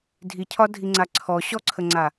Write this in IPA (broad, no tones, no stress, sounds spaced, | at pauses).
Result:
dʱ i cʰ ɒ dʱ i ŋ͡ǀ a ǀʰ ɔ ɕ ɔ ǀʰ ə ŋ͡ǀ a